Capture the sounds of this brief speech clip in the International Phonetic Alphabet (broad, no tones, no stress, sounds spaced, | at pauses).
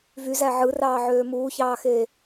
v y z æ ʕ ɯ r ɑː ʕ øː m uː ç ɑː x eː